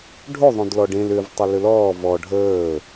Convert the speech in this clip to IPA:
ɖʱ o ðˤ õ d l ɔ ɖ ẽ l ʏ v tˤ ə l ʏ l ɔː v ɔ ɖʱ əː

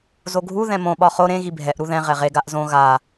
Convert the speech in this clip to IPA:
z o ɡʱ u ð ɛ̃ m õ ɓ ɒ χ o ɾ ẽ ɣ i bʱ ɛ ʔ ɾ u ð ɛ̃ ʁ ɛ ʁ e ɡ a ʔ z õ ɣ a

